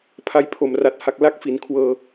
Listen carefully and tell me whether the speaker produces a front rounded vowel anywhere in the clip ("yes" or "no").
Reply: no